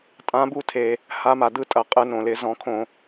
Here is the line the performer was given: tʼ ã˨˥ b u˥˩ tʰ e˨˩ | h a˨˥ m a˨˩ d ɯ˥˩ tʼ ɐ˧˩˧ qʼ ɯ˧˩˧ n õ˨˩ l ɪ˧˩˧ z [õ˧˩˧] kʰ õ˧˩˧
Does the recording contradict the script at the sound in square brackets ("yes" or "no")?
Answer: yes